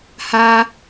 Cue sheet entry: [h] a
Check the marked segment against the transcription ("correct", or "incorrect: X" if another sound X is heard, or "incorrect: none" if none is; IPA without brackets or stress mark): correct